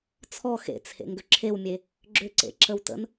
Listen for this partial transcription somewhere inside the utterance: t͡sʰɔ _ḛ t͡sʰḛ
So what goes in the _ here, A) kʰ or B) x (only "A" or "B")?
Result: B